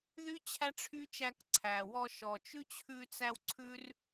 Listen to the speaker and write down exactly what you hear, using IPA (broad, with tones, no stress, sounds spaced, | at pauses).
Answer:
ð y˦ t͡ɕʰ æ˦ ʈ͡ʂʰ y˦ t͡ʃ æ˧ k ǀʰ æ˨ w ɔ˧ ʃ ɔ˨ t͡ʃ ʉ˦ t͡ɕʰ ʉ˧ t͡s æ˧ w ǀʰ ʉ˦ r